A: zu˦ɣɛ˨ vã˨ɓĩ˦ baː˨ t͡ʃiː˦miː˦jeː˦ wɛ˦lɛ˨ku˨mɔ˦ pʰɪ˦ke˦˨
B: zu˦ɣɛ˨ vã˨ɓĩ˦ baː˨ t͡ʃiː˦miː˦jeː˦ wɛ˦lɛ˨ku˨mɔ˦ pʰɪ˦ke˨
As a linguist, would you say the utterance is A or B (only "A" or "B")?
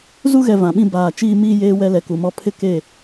A